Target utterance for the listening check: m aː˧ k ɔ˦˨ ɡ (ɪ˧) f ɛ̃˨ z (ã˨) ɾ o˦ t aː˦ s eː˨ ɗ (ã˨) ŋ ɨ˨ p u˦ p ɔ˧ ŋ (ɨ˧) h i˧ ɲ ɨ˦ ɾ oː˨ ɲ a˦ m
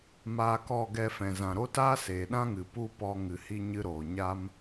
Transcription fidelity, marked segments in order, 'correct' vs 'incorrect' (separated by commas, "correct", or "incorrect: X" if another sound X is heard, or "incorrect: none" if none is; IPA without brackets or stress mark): incorrect: ɛ˧, correct, incorrect: ã˦, incorrect: ɨ˨